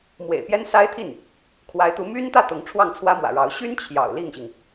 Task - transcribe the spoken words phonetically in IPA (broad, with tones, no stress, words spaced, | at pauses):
mwḛ˨˩ɪ̯pjɛ˥nsa˥ɪ̯t̪ʰi˥˩n | kʰwa˧˥ɪ̯t̪u˧˥ my˥nt̪ä˥˩ t̪ʊ˧˥ŋ ʈ͡ʂʰwɑ˥˩ŋt͡sʰwä˥mwä̰˨˩ɻɑ˧˥ʊ̯ ɕy˥n t͡ɕʰjɑ̰˨˩ʊ̯ li˥˩ŋɕi˩ŋ